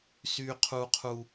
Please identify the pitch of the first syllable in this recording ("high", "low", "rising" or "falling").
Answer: low